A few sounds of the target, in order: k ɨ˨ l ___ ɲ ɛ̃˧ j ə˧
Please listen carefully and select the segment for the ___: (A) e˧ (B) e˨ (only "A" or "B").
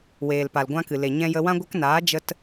B